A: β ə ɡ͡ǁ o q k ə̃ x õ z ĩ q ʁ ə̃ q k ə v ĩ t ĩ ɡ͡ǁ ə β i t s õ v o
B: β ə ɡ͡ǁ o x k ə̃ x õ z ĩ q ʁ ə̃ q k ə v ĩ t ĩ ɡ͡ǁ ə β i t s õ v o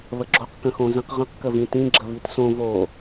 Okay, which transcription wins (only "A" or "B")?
A